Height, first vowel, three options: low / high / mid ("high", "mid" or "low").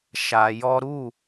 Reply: low